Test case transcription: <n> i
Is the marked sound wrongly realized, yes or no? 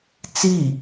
yes